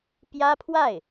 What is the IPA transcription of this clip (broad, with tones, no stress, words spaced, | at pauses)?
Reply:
pjä˥pʰwa˥˩ɪ̯